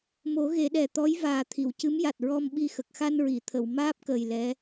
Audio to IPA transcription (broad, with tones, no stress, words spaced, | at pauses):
mo˨˩˦ ɣe˨˩˦ɗɛ˨˩t̪ɔ˧˥j vaː˨˩t̪ʰi˨˩˨wcɨ˧˥m ja˨˩t̚ɹɔ˧mɓi˧ xə˨˩k̚xa˧nɹi˨˩˨t̪ʰə˨˩˨w maː˦˥p̚kəː˨˩j lɛ˧˥